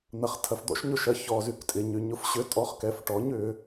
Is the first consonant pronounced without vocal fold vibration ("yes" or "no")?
no